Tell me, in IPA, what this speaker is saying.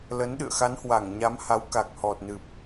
lə˨˦nɗɨ̰˧˨ə̯ xa˨˦nhwa˧˩ŋɲa˨˦mha˨˦w ka˨˩k̚hɔ˨˩t̚ nɨ˨˩p̚

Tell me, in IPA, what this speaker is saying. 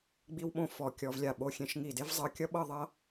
ɡ͡bi˥wɓõ˥˧ fɔ˧˩ kʲɔ˧vlʲa˧˩ ɓo˧xʲẽ˧ʃŋi˧˩de˥v zˤɤ˧kʲʌ˥ɓɤ˥˧ ðˤʌ˥

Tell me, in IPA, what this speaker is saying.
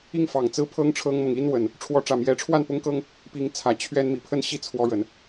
i˥˨ŋfɑ˨˩ŋ t͡sɹ̩˦pʰɤ˦ŋʈ͡ʂʰɤ˦ŋmɤ˨ŋ i˦nwə˨˩n | ʈ͡ʂʰwɔ˨˦ʈ͡ʂä˨˩mjɛ˨˦ʈ͡ʂʰwa˥˨n pʊ˦ŋkɤ˦ŋ | pi˨˦ŋt͡sʰä˨˩ t͡ɕʰɥɛ˦n mi˨˩pʰə˥˨n ɕi˥˨ t͡sʰwɔ˦ɻə˨˦n

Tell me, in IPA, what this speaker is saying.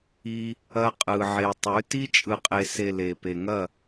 i˧ | ɐ˧qʼɯ˨ʕe˨ tˤʉ˨˦ ti˧t͡ʃʼɯ˨qʼe˨se˨ le˨pe˨ŋɐ˦˨

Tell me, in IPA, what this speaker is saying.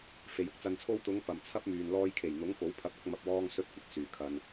fe˨jʊ˧k̚ t͡sɐ˨nt͡sʰo˧wt̪ʊ˨˧ŋ pɐ˨mt͡sʰɐ˥p̚myː˨n lɔː˧jkʰe˨˩jn̪ʊ˨˥ŋ ko˨˥wpʰɐ˨˥p̚ɐ˥k̚ mɐ˧p̚wɔː˥ŋsɵ˥t̚ kʷɪ˨k̚syː˨˩kʰɐ˨n

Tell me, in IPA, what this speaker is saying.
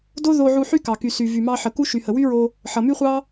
do˦ðo˧ʕu˧ ħy˦kɑ˨ ky˨sy˨ vy˨mɑ˧ħə˨ku˦ ʃy˨hə˨wy˦ɹo˧ | ħʌ˨my˦χʷɑ˦

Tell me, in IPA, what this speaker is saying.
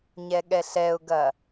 ɲɛɠɛɬɛʊ̯ɡɐ

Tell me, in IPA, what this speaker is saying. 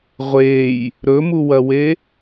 ʁʷej | ɾɵmuwɐwe

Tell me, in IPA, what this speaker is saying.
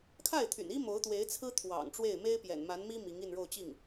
kʰa˥˩ɪ̯t̪ʰy̰˨˩ni˥ mo˧˥ʊ̯t̪we˧˥ɪ̯t͡sʰɹ̩˥ t̪ʰwɑ̰˨˩ŋ ʈ͡ʂwe˥˩ɪ̯me˥ɪ̯ pjɛ̰˨˩n ma˧˥nmi˥ mi˧˥ŋi˥˧nɻo˥˧ʊ̯t͡ɕi˥˩ŋ

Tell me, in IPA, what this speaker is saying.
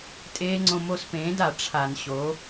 tʼeː˦˥ŋ͡ǀõ˧ mo˧spẽː˩˥da˧˩˧ ʈ͡ʂʰa˧˩˧n ɕo˩˥

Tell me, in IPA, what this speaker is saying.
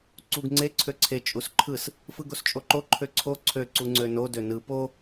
ǀuɡ ŋ͡ǀe ǀʰøǀʰe t͡ʃʼusǃʰɯs | fɯɡost͡ʃʼoǃo ǃʰøǀʰo ǀʰø ǀuŋ͡ǀøno dønɯ po

